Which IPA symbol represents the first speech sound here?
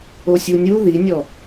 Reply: o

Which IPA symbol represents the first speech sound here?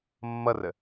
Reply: mː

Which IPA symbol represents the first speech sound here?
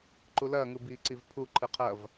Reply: ǃ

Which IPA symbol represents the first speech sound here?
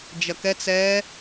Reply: d͡ʒ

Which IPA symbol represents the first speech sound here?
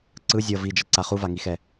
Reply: ǀ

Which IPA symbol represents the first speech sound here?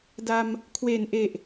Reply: d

